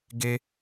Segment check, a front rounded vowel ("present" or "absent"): absent